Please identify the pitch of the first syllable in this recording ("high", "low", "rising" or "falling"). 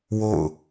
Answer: falling